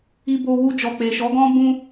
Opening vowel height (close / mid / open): close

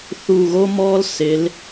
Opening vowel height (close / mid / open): close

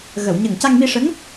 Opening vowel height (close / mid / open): mid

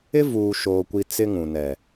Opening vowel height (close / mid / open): close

